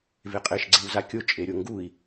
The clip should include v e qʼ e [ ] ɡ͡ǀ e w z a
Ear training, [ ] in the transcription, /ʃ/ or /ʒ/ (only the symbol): ʃ